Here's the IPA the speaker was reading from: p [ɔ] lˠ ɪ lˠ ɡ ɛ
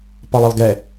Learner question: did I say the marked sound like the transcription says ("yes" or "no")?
yes